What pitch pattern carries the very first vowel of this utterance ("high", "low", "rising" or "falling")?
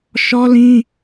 high